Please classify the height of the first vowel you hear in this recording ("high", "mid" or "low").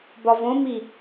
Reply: low